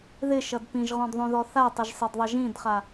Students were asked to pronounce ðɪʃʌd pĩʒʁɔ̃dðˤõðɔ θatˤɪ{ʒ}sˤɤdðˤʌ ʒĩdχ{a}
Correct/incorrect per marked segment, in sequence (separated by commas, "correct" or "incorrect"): correct, correct